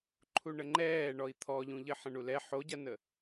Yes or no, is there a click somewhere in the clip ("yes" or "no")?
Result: yes